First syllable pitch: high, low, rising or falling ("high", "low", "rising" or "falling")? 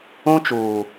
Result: high